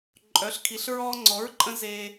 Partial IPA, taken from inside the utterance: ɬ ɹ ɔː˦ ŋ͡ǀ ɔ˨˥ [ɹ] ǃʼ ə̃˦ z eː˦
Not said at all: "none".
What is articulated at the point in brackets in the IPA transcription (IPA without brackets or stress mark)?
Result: ɹ